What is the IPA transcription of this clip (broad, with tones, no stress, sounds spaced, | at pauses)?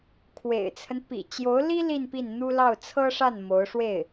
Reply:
kʰ w ḛ˨˩ ɪ̯ t͡sʰ ə˦ n p ḭ˨˩ t͡ɕ j o˧˥ ʊ̯ l i˥ l i˥˧ n p i˥˩ n n̪ u˥ l ɑ˥˩ ʊ̯ t͡sʰ ɤ˥ ʂ a˥˩ n m o˧˥ ʊ̯ ʂ w e˥˩ ɪ̯